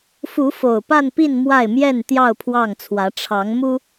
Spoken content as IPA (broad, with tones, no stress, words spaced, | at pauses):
fu˨˦ fo˨˩ʊ̯pa˥˨npi˥˨n mwa˥˨ɪ̯ mjɛ˥˨n t̪jɑ˥˨ʊ̯pʰwɑ˥˨ŋt͡sʰwä˨˦ ʈ͡ʂʰɑ˨˦ŋmu˦